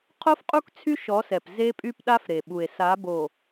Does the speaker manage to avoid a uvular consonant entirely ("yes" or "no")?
no